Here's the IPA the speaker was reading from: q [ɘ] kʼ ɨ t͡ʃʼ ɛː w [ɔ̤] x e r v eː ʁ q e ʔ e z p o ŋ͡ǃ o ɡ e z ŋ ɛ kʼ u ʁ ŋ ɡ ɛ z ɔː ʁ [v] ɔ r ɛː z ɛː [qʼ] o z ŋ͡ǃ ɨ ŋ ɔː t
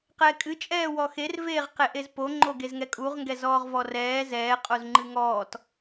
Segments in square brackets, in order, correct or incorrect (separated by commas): incorrect, incorrect, correct, correct